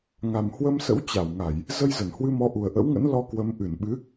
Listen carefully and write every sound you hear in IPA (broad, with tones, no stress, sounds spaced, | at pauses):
ŋ a˨˩ m h w ə˧ m s ə̰˧˥ w t͡ɕ a˧˩ w ŋ a˧˩˨ j | z ə˧ j z ə˧˩ n h w ɨ˧ m ɔ˨˦ ʔ u˨˩ ə̯ ʔ ə̰˧˥ w ŋ ə̰˧˥ n l ɔ˧ k w ə˨˦ m ʔ ɨ˧˩ n ɓ ɨ˨˦